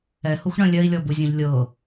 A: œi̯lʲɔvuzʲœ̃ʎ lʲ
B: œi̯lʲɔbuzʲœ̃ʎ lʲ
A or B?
B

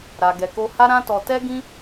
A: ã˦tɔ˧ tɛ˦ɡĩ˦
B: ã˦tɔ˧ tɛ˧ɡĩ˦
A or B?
A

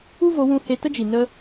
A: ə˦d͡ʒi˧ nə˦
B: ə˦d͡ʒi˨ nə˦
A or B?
B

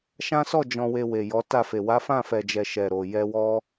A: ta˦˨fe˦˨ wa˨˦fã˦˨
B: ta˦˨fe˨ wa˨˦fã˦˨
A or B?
B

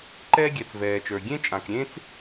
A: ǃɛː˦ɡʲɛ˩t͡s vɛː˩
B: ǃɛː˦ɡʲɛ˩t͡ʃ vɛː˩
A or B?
A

